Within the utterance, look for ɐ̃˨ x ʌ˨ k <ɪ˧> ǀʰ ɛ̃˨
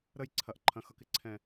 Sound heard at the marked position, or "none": ɪ˨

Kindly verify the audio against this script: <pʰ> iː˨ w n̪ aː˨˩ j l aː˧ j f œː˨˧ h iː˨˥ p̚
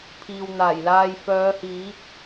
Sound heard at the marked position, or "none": pʰ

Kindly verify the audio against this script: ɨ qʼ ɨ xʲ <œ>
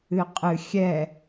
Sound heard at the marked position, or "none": ɛ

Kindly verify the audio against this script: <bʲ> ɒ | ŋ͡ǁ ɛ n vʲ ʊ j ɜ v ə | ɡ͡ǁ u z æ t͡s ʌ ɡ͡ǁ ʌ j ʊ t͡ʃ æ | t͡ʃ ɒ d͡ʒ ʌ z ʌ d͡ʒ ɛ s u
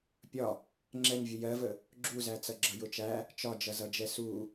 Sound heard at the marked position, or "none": pʲ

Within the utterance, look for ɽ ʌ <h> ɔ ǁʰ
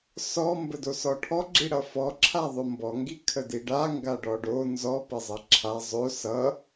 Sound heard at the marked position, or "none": f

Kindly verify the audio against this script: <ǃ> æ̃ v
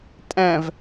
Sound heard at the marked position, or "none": tʼ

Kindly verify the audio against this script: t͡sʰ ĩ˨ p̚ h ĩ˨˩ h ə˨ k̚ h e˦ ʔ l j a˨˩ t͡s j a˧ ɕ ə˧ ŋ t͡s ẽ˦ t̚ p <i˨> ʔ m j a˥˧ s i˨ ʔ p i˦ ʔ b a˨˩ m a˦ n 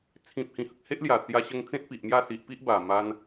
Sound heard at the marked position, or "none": i˨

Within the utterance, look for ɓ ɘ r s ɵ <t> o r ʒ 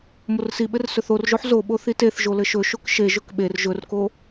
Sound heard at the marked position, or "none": θ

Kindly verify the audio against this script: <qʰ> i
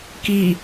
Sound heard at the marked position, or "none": k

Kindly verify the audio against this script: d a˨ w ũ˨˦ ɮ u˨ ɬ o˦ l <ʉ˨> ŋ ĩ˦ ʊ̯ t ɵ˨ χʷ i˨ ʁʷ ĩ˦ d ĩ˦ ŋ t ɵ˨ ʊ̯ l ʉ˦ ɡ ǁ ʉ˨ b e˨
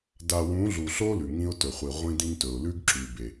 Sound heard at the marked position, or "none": ʉ˨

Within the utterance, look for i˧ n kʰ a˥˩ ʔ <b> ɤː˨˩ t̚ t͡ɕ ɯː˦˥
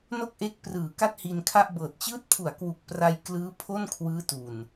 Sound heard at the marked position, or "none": b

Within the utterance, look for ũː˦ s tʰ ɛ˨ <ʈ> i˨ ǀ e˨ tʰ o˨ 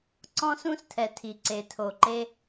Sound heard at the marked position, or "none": tʰ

